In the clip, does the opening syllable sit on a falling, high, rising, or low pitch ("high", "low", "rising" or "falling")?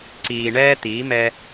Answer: low